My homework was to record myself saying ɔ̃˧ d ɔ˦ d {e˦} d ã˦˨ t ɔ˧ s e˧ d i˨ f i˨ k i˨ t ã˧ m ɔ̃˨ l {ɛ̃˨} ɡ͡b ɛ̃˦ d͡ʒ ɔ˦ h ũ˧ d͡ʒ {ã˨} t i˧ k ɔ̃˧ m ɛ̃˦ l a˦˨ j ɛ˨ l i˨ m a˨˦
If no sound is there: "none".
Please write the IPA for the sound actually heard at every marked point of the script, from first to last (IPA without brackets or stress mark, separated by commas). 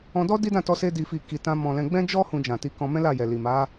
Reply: i˦, ɛ̃˧, ã˨